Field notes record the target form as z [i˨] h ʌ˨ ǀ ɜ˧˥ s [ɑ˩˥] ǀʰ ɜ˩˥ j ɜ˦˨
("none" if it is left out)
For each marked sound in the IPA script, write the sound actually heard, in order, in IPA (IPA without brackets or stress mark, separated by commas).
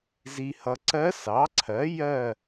i˨, ɑ˩˥